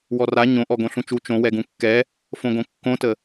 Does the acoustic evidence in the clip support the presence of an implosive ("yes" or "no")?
no